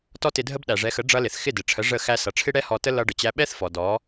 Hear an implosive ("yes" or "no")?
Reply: yes